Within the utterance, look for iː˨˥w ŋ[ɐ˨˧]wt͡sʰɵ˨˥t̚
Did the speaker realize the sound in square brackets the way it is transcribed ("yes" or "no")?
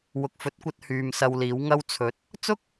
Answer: no